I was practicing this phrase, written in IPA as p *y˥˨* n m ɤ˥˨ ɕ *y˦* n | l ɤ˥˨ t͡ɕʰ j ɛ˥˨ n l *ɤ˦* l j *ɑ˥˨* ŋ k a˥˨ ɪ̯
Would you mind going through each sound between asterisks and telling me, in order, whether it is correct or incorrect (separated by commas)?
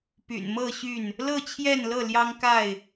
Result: incorrect, incorrect, incorrect, incorrect